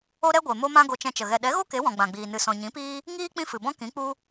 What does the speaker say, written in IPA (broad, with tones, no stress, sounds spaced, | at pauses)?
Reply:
o˦ ɾ ɛ˦ ɡʷ e˨ m o˦ m ã˦ ɡ o˧ t͡ʃ ɛ̃˧ t͡ʃ ə˨ ɣ ɛ˨ ɗ ɛ˨˦ ɣ o˦ k e˨˦ w ɔ̃˨ ɡ͡b ã˨ ɡ͡b iː˨ n ɨ˨ s ɔ̃˨ ɲ ĩ˨˦ p iː˦ | ŋ iː˦ k͡p ĩ˦ f ɨ˨ b ɔ̃˦ k ĩ˨˦ k͡p u˦